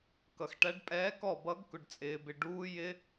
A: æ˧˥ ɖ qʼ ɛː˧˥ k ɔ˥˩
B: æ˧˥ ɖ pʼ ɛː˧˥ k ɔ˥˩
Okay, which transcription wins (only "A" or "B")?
B